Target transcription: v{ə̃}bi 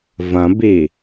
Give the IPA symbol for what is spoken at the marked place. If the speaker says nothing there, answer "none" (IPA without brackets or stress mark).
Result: ɐ̃